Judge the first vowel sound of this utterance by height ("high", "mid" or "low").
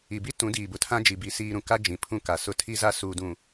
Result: high